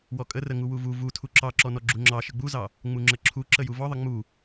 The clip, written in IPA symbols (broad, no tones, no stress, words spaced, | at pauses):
wɔkʼərə ŋuwuvu vu tʰuǁɑǁɔnɔ ɡ͡ǁuŋ͡ǁɑ ʃəɡ͡buzɑ | ŋ͡muŋ͡ǁəǁʰu ǁəjuvɔðˤə ŋ͡mu